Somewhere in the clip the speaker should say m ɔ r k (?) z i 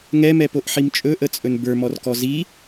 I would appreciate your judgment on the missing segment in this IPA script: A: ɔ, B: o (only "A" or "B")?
A